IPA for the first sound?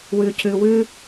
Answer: w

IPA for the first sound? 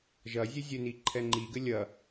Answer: ʒ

